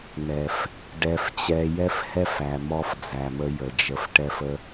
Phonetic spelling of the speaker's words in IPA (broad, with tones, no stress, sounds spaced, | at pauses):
n ɛ˨ f | ɖ ɛ˧ f t͡ɕ ɛ˧ j ɛ˦ f h ɛ˦ f æ˨ m ɔ˧ f d͡z æ˨ m ə˧ j ə˨ d͡ʒ ə˧ f ʈ ɛ˦ f ə˦